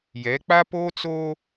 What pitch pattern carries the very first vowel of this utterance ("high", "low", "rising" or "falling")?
rising